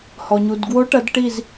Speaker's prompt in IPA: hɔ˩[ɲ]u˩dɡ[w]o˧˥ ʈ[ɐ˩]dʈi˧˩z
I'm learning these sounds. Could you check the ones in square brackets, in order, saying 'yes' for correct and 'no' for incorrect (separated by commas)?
yes, yes, no